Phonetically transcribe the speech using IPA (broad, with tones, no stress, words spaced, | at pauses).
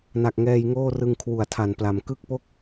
na˨˩k̚ŋɛː˧jŋoː˥˩rɯ˧ŋ kʰwu˨˩a̯tʰa˨˩npla˨˩m kɯ˥˩k̚po˥˩k̚